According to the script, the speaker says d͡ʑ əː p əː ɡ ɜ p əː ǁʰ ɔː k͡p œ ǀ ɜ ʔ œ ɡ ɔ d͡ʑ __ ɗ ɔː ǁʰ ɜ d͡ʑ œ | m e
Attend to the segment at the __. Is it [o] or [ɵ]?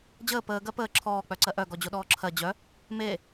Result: o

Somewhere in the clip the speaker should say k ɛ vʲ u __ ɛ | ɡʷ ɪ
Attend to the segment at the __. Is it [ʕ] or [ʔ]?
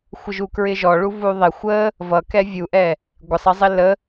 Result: ʔ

